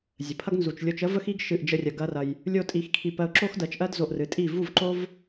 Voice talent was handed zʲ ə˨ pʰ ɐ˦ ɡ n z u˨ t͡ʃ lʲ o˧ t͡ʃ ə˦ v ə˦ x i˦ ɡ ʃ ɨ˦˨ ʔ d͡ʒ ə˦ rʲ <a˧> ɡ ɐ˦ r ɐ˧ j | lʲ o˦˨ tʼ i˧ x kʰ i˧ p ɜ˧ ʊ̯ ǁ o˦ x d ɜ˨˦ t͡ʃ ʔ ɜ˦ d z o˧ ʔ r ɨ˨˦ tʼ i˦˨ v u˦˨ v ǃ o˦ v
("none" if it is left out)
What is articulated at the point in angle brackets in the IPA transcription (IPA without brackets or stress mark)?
ɐ˧